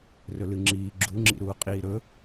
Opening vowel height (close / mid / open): mid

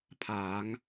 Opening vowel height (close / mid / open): open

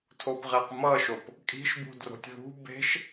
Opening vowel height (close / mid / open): mid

